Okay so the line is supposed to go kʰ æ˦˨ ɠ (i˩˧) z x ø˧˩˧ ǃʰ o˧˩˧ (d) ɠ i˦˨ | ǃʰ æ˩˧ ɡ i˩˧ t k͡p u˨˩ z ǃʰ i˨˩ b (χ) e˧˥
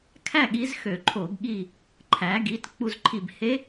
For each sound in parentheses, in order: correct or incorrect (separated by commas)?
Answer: incorrect, incorrect, incorrect